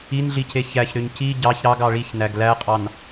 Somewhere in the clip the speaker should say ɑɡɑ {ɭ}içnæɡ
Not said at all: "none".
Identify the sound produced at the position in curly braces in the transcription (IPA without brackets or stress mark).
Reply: ɭ